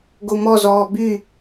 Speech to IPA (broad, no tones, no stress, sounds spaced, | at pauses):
ɡ o m ɔ z ɔː b y